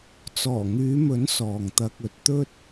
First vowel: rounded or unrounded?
rounded